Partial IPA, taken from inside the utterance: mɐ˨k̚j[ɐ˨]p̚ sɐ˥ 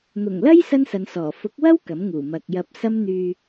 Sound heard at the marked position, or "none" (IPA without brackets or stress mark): ɐ˧